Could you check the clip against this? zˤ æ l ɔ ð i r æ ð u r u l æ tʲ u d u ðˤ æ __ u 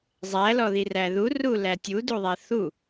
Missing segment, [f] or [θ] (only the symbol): θ